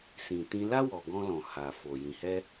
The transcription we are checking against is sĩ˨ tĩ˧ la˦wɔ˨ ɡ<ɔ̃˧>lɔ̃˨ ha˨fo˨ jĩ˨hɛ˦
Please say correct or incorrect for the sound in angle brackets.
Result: incorrect